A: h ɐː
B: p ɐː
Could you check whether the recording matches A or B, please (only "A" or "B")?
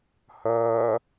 A